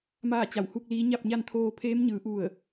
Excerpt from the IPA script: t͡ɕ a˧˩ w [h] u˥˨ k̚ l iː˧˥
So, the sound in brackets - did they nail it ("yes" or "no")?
yes